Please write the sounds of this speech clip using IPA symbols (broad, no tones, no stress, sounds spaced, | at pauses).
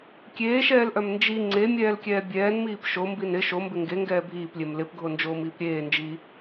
kʲ eː ʃ ɛː l ʔ œ m n d͡ʒ i ŋ͡ǀ e mʲ ɛː l kʲ ɛː bʲ ɛː n m iː p ʃ o m b i n ɪ ʃ o m b ɪ ŋ ɡ e ŋ ɡ ɛː bʱ iː p lʲ e m l ɪ p ɡʱ o n d͡ʒ oː m iː p ɾʲ eː n d͡ʒ i